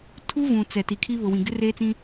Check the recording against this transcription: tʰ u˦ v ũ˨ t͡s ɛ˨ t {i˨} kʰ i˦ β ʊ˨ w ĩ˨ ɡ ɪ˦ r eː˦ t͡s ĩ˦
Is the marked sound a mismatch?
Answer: no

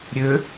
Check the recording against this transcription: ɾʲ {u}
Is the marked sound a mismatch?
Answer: yes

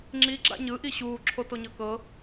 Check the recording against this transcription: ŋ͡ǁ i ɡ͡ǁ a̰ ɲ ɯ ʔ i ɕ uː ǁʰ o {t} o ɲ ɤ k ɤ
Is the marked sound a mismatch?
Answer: no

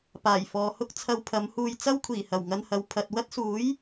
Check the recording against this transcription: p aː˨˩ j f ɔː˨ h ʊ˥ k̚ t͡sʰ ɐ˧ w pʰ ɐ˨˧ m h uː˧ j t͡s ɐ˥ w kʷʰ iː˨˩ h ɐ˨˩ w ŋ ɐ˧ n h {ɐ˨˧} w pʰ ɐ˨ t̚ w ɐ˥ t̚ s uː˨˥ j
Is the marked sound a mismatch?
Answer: no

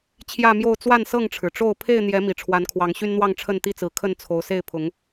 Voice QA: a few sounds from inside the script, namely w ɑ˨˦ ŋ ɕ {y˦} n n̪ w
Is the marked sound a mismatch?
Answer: no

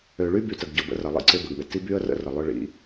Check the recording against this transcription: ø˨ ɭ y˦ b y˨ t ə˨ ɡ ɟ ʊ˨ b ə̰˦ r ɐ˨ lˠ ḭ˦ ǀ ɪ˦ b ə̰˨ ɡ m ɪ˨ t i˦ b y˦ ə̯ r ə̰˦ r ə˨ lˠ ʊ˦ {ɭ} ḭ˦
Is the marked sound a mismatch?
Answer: no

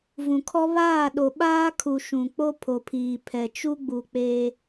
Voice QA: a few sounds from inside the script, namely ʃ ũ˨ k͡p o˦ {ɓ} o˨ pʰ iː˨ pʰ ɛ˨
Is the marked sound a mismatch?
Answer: yes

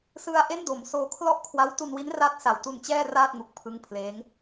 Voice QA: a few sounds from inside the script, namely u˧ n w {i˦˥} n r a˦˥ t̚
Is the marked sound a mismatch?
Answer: no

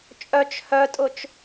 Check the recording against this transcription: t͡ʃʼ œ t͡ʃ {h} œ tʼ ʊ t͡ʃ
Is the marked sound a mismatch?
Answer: no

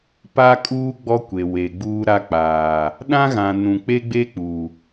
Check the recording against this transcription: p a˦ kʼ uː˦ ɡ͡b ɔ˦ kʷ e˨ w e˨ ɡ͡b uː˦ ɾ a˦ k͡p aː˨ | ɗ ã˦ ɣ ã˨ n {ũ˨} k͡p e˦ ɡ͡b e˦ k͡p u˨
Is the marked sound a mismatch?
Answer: no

